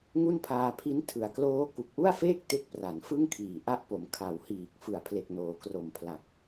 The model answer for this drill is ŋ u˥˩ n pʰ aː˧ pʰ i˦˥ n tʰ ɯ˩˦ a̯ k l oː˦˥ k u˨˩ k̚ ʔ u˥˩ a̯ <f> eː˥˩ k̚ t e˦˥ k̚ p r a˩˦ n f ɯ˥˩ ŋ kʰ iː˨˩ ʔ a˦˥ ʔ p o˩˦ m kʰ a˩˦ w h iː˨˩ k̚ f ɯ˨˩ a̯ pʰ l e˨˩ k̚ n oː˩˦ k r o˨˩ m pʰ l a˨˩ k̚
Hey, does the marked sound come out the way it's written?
yes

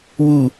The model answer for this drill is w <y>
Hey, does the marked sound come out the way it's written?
no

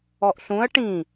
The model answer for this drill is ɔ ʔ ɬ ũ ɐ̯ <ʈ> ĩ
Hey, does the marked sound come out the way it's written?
yes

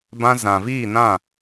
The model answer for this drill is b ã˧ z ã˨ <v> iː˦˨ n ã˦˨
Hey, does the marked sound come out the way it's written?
yes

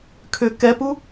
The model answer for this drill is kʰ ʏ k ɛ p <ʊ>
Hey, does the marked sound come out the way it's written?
no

